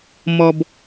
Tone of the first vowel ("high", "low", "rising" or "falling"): low